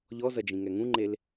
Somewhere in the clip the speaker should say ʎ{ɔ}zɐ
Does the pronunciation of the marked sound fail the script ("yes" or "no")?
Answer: no